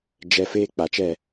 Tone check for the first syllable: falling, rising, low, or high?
high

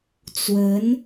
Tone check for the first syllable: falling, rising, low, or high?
rising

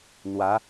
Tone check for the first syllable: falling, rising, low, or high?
rising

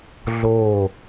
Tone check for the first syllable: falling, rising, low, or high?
falling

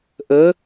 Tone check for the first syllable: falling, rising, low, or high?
rising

